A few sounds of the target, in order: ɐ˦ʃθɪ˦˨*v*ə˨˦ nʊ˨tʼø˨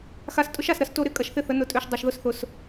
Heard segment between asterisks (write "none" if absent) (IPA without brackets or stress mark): θ